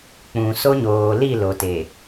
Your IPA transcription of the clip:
k͡p ũ˨ s o˦ ɲ oː˨ l i˦˨ l o˨ t e˨

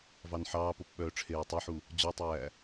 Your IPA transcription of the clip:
v ɑ n ħ ɑː p o p ɓ œː ʈ͡ʂʰ eː w tˤ e ħ u | d͡ʑ ɔ tˤ æː

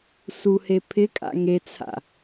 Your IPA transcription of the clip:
s u h e pʰ ɪ kʼ a̰ ŋ e t͡sʰ a̰

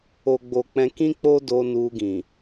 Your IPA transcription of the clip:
o˨ ɡ͡b o˨ k͡p ɛ̃˧ k ĩ˦ k͡p o˦ d o˧ n u˧ ɡ ĩ˨

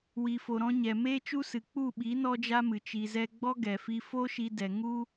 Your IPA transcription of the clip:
w i˨ f o˨ ɾ ɔ̃˧ ɲ ɛ˨ m eː˦ t͡ʃ u˦ s ɨ˨ k͡p u˦˨ ɓ i˨˦ n ɔ˦ d͡ʒ a˦ m ɨ˨ t͡ʃ i˨ z ɛ˧ ɡ͡b ɔ˦ ɡ ɛ˨ f i˧ f o˦ ʃ i˧ d ɛ˨ ŋ u˦

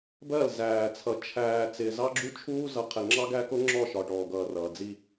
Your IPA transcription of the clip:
b ɜ˦˨ l z æː˨ t͡sʰ ʌ˨ t͡ʃʰ æː˨ t͡s ɪː˨ z ɑ˦ ɡ͡ǁ u˦ t͡ʃʰ uː˦ z ʌ˨ qʰ ɪ˨ ŋ͡ǁ ɑ˦ ɡ æ˦ k ʊ˦ ŋ͡ǁ ɔ˦˨ ʃ ɒ˨ ʈ ɔː˨ ɡ ʌː˨ r ʌː˨ d͡z i˦

